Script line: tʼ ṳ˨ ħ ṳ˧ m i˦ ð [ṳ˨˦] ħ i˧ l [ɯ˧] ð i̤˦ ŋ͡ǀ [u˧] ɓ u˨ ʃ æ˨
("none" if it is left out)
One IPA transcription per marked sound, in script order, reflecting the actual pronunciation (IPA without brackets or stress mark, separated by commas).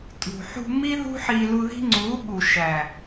ṳ˦, u˧, u˨˦